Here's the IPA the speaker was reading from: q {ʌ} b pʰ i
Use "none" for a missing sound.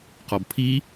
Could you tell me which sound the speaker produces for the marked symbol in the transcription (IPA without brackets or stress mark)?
ɔ